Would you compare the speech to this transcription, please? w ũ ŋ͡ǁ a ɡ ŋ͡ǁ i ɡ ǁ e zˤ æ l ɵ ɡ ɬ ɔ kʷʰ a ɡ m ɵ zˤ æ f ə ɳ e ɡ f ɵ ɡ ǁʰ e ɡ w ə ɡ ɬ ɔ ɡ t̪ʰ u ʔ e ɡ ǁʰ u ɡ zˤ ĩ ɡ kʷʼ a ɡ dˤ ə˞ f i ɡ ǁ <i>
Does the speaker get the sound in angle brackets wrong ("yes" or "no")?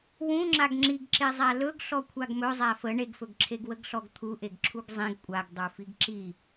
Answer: no